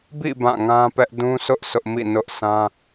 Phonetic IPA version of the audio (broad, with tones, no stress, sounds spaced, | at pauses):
b ḭ˦˨ b ã˦˨ ŋ ã˦ p ɛ˦ ʔ d ũ˦ sʰ ʊ˦ ʔ s ʊ˦ ʔ m ḭ˦˨ n ʊ˦ ʔ s ã˦